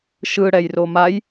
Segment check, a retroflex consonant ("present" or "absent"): present